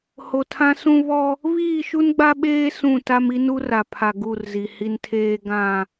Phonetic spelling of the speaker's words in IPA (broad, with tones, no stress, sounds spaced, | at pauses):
h o˨ tʰ ã˦ s ũ˦ β ɔ˦ | β iː˦˨ ʃ u˦ n ɡ͡b a˦ ɓ eː˦ s ũ˦˨ t a˦ m i˦ n u˦ r a˨ pʰ a˨ ɡ u˦˨ r z i˨ h i˦ n tʰ eː˦ ɡ ã˦˨